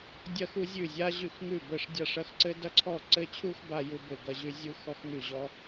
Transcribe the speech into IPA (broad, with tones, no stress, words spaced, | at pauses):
dʲɐ˥xu˥ zʲʉ˥˩zʲa˥ ʑʉ˥˩xŋʉ˥˩bə˥˩ʂ dʲa˥˩ʂɐ˥xǀɘ˥ dɐ˥ǀʰɔ˥˩ ǀɘ˥˩t͡ɕʰu˥x ba˥ ju˥bɘ˥˩ɡɐ˥ʑʉ˥ zʲu˥ xɔ˥xŋʉ˥˩ʑɔ˥